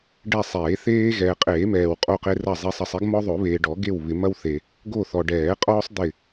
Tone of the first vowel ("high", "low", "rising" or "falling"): falling